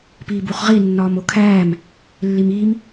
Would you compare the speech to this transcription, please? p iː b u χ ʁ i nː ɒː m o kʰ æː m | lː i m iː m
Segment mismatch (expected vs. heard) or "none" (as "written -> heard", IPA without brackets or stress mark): none